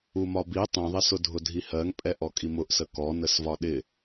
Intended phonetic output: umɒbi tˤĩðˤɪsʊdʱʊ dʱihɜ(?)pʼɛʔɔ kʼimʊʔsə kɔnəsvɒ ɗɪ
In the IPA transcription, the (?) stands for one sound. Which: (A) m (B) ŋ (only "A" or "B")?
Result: B